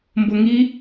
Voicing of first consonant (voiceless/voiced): voiced